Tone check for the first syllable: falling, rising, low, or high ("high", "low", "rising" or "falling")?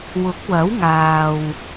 rising